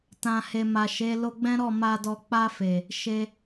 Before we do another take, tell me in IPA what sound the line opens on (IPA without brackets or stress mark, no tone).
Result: t